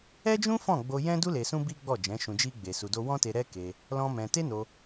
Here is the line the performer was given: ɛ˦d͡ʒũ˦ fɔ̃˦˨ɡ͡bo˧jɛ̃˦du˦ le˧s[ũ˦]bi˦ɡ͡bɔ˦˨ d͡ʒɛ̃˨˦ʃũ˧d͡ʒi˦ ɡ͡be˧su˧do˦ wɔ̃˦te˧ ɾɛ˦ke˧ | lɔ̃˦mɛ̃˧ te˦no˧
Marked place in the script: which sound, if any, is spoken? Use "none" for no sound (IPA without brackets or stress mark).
ũ˦